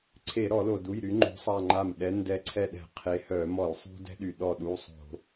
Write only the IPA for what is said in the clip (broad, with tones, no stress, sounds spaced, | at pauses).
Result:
ǀʰ e˧˩˧ ɾ ɔ˧˩˧ l o˩ d u˩˧˩ j ɾ y˨˦ ŋ͡ǃ o̤˨˦ sˤ a˧˩ ŋ͡ǃ a˧˩ m ɗ ɛ˨˦ n d ɛ˨˦ ǀʰ ɛ˧˩ ɗ ɛ̤˧˩˧ qʰ e˨˦ h œ˧˩˧ m ɔ˧˩˧ j sˤ ṳ˥ d ɛ̤˥ ɗ y˩ ɗ ɔ˧˩ ɗ u˩˧˩ sˤ o̤˧˩˧